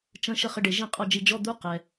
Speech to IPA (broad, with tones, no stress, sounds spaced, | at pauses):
t͡ʃ ə̃˧˥˧ ʃ ə˥˧ χ ə˧˥˧ ɖ e˧ ʒ ĩ˥˧ qʼ ɔ˥˧ d͡ʒ i˧˥˧ d͡ʒ ɔ˧˥˧ d̪ u˧˥˧ q ɛ˧